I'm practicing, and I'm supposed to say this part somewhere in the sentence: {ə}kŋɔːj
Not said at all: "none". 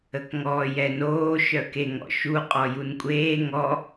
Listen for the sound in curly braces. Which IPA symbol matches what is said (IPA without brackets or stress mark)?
ə